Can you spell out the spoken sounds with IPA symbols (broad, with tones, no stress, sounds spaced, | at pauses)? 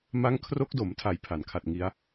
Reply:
m a˦˥ ŋ kʰ r o˦˥ k̚ d o˩˦ m tʰ a˧ j pʰ a˩˦ n kʰ a˨˩ t̚ ŋ i˦˥ a̯